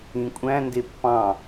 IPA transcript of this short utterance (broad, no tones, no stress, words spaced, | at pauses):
ĩkʷʼæ̃ ndepːɑ̃